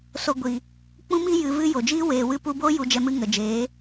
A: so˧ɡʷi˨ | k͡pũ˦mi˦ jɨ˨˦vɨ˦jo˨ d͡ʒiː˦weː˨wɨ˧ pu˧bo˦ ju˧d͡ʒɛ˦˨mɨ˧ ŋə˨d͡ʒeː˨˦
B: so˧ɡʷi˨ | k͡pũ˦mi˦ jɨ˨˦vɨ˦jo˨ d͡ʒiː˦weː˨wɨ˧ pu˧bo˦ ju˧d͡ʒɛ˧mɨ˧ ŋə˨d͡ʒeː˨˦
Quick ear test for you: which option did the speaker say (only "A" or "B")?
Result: B